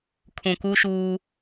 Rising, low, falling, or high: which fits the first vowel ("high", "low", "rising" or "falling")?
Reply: low